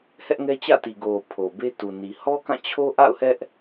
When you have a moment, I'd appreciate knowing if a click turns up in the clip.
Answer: no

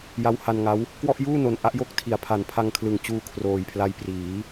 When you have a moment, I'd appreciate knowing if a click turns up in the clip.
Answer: no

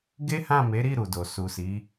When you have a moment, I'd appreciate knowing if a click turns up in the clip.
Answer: no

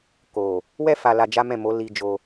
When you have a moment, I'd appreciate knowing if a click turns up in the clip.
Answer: no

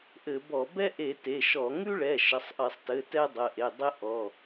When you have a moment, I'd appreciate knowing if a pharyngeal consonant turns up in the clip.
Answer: no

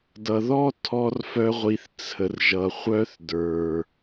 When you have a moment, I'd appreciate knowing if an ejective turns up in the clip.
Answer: no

